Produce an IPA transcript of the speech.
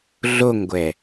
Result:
ɮ o ŋ ɡʷ ɛ

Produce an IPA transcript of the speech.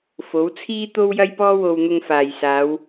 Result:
f o˨˥ w t͡sʰ iː˥ t̪ o˥ w j ɐ˥ j p ɔː˥ w o˧ w n̪ ʊ˧ ŋ f aː˨ j s aː˨˧ w

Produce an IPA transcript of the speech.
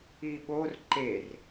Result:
i ɓ o r ǃ e r

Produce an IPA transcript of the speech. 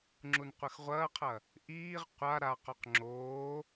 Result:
ŋ͡ǁ u n qʷ ə x ʁʷ ɐː qʰ ɐ | ʔ iː ʁ qʷ a ɾ a q o q ŋ͡ǁ oː

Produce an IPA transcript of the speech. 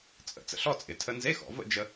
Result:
t͡sʼ ə̰˩˧ t͡s ə̰˧ ɬ ɔ˥˧ t͡sʼ ɪ˩˧ tʰ ə˧ n z e˧˥˧ x ɔ̰˩˧ v ə̰˥˧ d͡ʒ ə˧

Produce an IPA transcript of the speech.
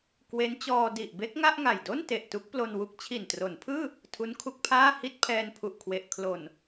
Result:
k w e˦˥ n t͡ɕ ɔː˧ d i˨˩ ʔ b e˦˥ k̚ ŋ a˥˩ ʔ ŋ a˨˩ j d o˥˩ n t e˨˩ ʔ t u˦˥ k̚ p l o˧ n w u˦˥ k̚ t͡ɕʰ i˨˩ n t r o˩˦ n pʰ ɯː˥˩ | tʰ u˦˥ n kʰ u˦˥ k̚ pʰ aː˥˩ h i˥˩ t̚ pʰ ɛː˧ n pʰ u˨˩ ʔ kʰ w e˨˩ ʔ kʰ l o˨˩ n

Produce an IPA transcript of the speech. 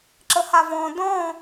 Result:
ǁ ə h a v ɔ̃ d ɔ̃

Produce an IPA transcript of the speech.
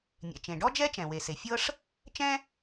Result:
nʲ ɛ̰˩ t͡ʃ ẽ˩ ɖ ɔ˥ d͡ʒ ɛ˥ t͡ʃ ɛ̃˩ w e˩ s e˩ fʲ ɤ˥ ʂ | t͡ʃ ɛ̃˥

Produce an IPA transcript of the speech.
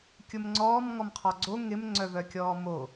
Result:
kʲ ʊ m ŋ͡ǀ ɔː m ŋ ɔ m qʰ ɔ ɡ͡ǀ o ŋ ɪ m ŋ͡ǀ œ v œ kʲ ɔː m o

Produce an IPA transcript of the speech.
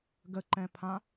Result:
ɡ ə ǃ ɛ̃ pʰ ã

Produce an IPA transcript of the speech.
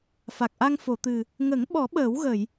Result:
f a˨˩ k̚ ʔ a˧ ŋ f o˨˩˨ t̪ ɨ˨˩ | ŋ ə˨˩˦ ŋ ɓ ɔ˨˩˦ ɓ əː˨˩˦ w ɣ ə˨˩˨ j

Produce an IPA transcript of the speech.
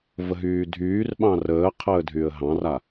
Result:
v ə ɦ yː dʱ yː r ɓ ɑ̃ r əː qʰ əː dʱ y ə̯ ɦ ɑ̃ r a

